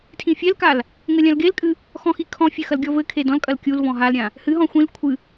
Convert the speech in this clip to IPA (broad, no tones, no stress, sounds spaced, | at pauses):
tʰ ĩ fʲ ɛ l k a l | ŋ ɘ lʲ ã l ɡ e l kʼ ɨ | x ɔ̃ x i kʰ ɔ̃ fʲ ɘ x ɐ l ɡʲ ɔ v ɘ kʰ e d ɔ̃ l kʼ ɐ l kʲ u l v ɔ̃ ɦ a l ɾʲ ã | h ɨ ɦ ɔ̃ xʷ ĩ l kʷʰ ɨ